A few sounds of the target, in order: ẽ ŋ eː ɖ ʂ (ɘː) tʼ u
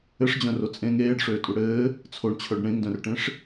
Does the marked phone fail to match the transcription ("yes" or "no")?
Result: yes